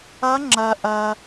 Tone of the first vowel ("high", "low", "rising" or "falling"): rising